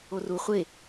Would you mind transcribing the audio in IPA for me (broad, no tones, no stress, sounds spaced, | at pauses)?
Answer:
o r u χʷ e